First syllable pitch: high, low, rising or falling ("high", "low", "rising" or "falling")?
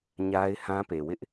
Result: high